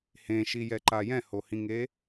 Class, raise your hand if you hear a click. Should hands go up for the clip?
yes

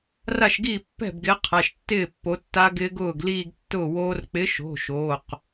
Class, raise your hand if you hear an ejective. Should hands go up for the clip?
no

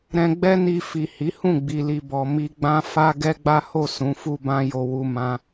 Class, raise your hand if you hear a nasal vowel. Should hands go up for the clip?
yes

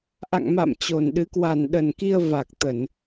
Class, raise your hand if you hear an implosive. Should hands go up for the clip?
yes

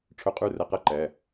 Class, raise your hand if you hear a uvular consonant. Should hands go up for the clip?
yes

